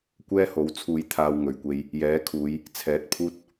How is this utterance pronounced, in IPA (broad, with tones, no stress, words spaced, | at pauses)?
kʷɛː˥ho˨˥wt͡sʰuː˧jt̪ʰaː˧w ŋɵ˨ɥkʷe˥j | jɛː˨˥kʰuː˨˧j | t͡sʰɛː˨˥t̚pʰuː˥t̚